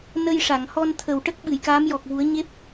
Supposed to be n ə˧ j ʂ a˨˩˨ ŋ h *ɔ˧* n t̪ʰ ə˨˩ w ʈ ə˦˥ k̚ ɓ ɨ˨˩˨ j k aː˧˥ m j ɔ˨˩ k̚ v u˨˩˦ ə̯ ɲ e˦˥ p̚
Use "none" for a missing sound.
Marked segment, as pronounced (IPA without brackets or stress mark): ɔ˧